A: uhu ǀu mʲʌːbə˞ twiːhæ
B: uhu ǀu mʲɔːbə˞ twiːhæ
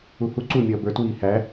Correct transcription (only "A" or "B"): A